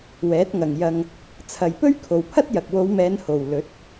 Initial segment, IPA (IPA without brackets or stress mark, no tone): w